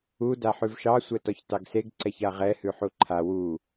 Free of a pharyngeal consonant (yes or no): no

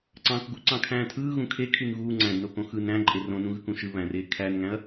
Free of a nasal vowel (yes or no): no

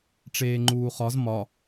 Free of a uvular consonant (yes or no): no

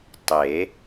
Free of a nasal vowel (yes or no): yes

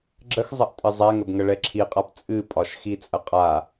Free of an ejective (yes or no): no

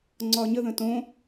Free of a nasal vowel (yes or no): no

